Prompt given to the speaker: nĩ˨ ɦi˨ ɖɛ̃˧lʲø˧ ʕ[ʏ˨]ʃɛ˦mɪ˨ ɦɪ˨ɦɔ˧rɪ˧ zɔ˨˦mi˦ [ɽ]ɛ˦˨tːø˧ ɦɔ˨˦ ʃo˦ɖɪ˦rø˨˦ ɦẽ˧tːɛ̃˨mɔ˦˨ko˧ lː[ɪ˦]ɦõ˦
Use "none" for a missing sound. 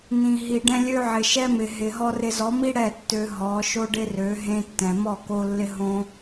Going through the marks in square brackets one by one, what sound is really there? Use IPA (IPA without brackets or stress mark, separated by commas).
ɪ˨, ɽ, ɪ˦